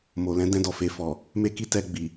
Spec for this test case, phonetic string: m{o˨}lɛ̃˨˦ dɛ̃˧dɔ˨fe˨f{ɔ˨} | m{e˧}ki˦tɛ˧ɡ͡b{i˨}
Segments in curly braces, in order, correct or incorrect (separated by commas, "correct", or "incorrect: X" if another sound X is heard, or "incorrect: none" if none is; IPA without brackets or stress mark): correct, correct, incorrect: e˦, correct